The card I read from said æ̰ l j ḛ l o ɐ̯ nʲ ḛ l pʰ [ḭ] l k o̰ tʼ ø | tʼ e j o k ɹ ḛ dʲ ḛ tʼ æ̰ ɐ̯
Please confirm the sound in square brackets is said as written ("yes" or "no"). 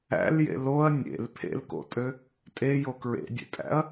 no